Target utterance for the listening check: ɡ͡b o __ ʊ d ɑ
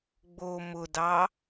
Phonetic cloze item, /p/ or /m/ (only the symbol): m